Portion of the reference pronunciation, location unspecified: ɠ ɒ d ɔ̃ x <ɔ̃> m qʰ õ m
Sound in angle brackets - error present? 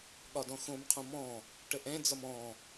yes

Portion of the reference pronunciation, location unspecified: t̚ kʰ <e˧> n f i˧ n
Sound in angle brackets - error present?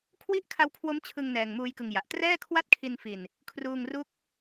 yes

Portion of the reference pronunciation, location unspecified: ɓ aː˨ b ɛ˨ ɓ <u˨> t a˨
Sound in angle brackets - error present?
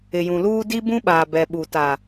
no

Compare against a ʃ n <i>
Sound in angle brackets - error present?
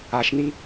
no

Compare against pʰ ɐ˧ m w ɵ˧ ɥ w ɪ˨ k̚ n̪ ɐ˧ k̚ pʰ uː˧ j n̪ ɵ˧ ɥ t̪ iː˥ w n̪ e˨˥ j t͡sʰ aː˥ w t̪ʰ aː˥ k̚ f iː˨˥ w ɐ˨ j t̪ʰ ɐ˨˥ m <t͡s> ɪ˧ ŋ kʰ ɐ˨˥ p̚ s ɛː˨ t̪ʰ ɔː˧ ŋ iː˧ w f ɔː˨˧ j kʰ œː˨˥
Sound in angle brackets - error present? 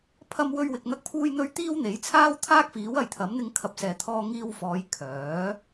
yes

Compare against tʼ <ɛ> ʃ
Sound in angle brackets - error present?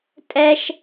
no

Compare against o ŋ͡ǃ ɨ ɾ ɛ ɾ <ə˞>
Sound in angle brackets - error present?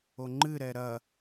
yes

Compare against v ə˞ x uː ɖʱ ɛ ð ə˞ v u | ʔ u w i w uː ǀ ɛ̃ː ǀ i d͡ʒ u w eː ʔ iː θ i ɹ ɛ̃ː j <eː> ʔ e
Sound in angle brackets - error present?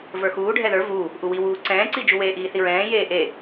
no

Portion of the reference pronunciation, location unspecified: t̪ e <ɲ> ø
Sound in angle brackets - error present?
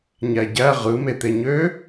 no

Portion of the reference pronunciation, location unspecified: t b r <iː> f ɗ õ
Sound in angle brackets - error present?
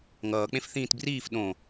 no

